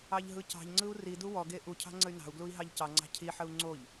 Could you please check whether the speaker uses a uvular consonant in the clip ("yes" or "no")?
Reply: no